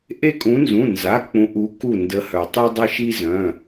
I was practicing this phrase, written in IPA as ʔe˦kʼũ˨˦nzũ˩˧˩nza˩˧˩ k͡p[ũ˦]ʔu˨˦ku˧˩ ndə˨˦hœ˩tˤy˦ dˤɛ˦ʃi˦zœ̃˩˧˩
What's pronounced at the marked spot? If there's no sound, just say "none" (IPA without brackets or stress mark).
ũ˨˦